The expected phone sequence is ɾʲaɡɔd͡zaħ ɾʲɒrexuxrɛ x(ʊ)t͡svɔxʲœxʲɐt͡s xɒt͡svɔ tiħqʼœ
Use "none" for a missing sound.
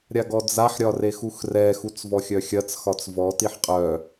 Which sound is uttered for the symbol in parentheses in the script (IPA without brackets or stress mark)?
u